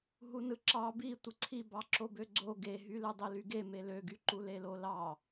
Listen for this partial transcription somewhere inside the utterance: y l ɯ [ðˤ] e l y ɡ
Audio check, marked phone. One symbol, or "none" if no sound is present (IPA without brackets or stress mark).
dˤ